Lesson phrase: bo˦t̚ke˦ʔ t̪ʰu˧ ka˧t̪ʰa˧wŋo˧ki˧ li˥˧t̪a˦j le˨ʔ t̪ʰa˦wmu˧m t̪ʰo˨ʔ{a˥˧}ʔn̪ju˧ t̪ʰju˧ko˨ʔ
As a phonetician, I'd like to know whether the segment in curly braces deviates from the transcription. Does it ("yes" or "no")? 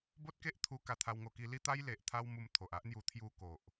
yes